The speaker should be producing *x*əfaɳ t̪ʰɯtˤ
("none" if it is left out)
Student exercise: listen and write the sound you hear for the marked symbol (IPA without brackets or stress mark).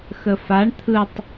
x